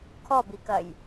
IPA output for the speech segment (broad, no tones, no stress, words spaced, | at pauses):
kʰɔbikɐj